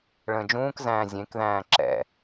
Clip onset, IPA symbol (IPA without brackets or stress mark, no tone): ɭ